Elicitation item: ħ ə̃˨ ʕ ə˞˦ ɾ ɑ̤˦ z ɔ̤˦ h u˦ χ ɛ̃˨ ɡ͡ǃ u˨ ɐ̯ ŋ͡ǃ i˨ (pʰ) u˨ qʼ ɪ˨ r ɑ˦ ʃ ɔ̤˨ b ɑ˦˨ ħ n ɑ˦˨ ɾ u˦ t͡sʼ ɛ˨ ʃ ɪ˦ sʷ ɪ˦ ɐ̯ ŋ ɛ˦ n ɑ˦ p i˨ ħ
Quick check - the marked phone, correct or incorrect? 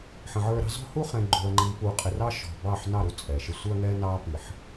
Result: incorrect